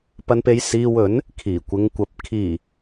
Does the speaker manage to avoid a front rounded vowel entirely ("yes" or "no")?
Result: yes